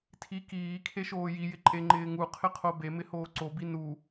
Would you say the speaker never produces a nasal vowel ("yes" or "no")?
yes